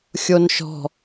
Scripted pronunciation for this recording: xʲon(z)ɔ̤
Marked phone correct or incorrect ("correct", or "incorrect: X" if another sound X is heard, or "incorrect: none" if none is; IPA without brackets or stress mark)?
incorrect: ʃ